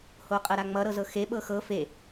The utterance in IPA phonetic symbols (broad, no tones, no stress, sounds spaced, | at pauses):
h o qʼ ɤ ɾ a ŋ͡m ʌ ɾ ɤ z ɤ x e ɓ ɤ x ɤ f e